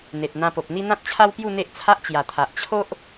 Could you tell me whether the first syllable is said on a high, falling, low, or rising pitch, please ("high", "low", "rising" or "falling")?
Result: low